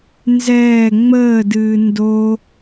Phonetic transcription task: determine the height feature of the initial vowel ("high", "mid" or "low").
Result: mid